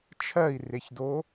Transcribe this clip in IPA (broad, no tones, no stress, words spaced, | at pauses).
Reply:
t͡ʃʰɜi̯reçdo